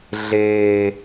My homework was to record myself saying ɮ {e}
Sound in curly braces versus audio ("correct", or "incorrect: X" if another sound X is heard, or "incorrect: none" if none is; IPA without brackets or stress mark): correct